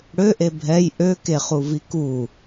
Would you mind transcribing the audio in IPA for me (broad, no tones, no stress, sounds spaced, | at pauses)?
ɽ ø ʔ e bʱ ɛ j ʔ ø k e χ u v i k u